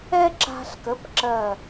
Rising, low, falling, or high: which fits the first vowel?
high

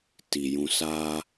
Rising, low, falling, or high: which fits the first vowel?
low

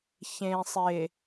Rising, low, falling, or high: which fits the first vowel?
low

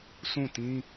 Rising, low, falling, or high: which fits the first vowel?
falling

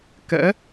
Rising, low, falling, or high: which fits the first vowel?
rising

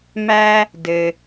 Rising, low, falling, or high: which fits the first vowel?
high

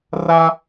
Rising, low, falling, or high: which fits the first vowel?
high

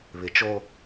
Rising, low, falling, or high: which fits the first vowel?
low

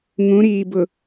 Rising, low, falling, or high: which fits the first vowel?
rising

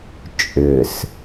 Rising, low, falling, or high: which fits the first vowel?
low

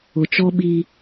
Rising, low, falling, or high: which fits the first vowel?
low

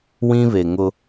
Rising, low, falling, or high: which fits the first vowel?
high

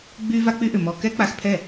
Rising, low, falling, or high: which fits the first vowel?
high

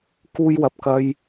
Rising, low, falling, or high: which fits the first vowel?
high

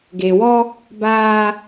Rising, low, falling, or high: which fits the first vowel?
low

